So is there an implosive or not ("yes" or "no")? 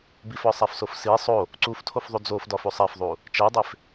no